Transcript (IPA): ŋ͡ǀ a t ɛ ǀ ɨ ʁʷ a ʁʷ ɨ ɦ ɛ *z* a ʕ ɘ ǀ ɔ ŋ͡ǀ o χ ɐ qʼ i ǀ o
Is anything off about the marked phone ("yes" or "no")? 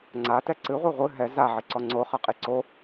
no